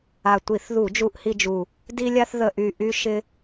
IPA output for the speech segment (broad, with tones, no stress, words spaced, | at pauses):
a˨˩tʷi˧˩˧θðu˧˩˧ d͡ʒu˧ʔhi˧d͡ʒu˨˩ | di˧lʲa˧θðə˨˩ʔy˨˩ ʔy˧ ʃɪ˧